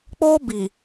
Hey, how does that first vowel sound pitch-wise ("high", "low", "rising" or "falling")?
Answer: high